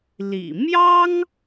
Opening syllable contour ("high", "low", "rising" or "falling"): low